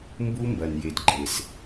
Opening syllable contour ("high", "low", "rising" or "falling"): high